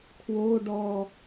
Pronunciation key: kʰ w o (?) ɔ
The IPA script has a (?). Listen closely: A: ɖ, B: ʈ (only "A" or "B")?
A